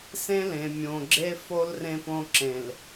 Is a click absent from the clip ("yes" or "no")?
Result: no